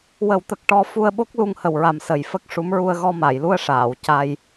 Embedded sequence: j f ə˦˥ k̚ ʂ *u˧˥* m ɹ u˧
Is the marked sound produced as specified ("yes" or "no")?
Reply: yes